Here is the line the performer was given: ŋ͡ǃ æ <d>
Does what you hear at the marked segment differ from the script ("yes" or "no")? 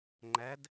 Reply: no